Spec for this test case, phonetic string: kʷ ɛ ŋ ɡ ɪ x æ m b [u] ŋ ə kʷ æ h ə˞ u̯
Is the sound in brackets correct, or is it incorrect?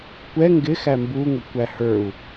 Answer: correct